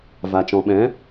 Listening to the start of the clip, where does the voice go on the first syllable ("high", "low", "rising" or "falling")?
low